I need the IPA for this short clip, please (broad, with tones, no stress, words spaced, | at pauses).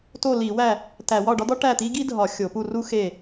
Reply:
to˥˨li˧˩˧wæ˥˨ | tæ˧˩˧wɒ˥˨ ɖɒ˥d̪ɒ˥ ʈæ˥˨t̪i˥ ɡi˥dʱɒ˧˩˧ xʲo˧˩˧pu˥˨ru˥ xe˥˨